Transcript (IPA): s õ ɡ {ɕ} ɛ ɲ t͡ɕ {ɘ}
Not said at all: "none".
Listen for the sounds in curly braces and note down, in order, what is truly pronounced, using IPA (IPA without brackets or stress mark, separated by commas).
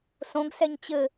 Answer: s, ɘ